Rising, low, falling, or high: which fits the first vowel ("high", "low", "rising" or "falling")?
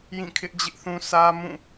falling